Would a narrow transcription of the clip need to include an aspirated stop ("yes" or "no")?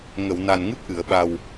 no